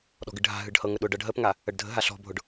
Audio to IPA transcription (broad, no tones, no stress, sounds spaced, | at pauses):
ɗ ɔ̤ ɡ ɨ ɖ ɦ a̤ ɦ ɨ ɖ h ɤ ŋ ə ɗ ʊ ɖ ɤ ɖ ɦ ə p ŋ a | ə ɖ dʱ ə̤ ɦ a ɬ ɔ̤ bʱ ʊ ɖ